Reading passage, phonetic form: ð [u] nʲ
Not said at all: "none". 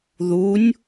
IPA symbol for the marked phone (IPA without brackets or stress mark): u